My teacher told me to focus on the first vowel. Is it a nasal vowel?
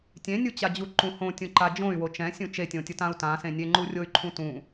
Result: yes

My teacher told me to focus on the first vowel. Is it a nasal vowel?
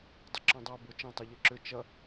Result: no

